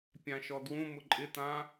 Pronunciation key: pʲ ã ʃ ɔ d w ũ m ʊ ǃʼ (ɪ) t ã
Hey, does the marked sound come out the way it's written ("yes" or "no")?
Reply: yes